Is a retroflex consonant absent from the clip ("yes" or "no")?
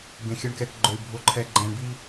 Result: no